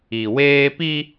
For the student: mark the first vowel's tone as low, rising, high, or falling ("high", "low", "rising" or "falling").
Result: low